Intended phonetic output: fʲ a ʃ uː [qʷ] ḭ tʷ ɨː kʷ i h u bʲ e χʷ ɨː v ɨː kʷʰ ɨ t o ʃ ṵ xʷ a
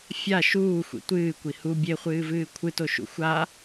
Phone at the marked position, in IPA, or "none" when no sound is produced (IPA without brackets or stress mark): xʷ